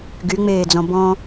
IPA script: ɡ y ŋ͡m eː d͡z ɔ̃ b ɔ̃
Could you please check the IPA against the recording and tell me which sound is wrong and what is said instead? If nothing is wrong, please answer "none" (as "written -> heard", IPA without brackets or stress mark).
none